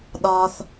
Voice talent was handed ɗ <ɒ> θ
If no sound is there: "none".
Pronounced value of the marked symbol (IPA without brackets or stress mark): ɒ